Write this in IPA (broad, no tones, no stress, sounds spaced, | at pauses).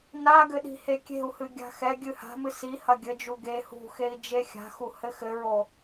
n a ɡ ɘ ɗ i̤ h e kʲ e̤ u̯ h ɨ ɡʲ a̤ x ɛ ɡʲ ɨ h a̤ m ɨ s i h ɐ ɡʲ ɘ d͡ʒ u ɡ e h ṳ x e i̯ d͡ʒ e xʲ a̤ x u h ɘ x ɘ ɹ o